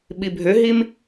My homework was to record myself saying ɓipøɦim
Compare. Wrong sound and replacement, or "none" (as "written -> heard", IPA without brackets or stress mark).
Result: p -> bʱ